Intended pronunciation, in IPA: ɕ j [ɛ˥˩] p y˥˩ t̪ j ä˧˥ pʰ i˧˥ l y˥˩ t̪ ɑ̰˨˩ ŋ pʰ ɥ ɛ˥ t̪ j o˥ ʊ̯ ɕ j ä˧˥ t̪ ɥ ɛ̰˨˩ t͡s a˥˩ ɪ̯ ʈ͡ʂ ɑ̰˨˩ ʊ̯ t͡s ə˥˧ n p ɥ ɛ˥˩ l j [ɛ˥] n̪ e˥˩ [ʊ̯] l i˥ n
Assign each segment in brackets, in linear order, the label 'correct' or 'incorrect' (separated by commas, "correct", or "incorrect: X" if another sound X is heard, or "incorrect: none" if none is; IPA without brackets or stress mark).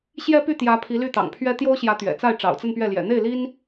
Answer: incorrect: ɛ˥, incorrect: ɛ̰˨˩, incorrect: ɪ̯